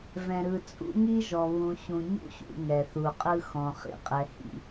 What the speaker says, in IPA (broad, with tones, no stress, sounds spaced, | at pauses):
v ɛ̃˨ ɾ ɯ˨ t͡sʼ ṵ˦ ŋ i˦ ʒ ɔ˨ β ũ˨ ɕ ũ˨ ɲ ṵ˦ ɕ ṵ˨ ŋ ɛ˨ θ u˨ qʼ ɯ˦ x ɔ̃˨ χ ḭ˦ qʼ ɛ˨ h ḭ˦˨